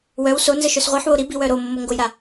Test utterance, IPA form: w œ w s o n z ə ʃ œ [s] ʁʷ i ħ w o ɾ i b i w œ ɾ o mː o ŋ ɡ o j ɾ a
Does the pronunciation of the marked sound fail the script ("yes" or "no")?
no